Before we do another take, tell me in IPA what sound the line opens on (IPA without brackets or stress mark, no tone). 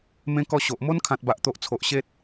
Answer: m